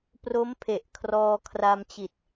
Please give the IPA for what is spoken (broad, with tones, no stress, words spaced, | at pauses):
pro˦˥mpʰe˨˩ʔ kʰrɔː˧kʰra˧mt͡ɕi˨˩t̚